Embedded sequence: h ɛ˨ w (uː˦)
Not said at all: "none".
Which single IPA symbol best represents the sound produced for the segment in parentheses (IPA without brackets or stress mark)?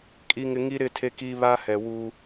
uː˦